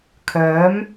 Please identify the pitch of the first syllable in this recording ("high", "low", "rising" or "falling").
rising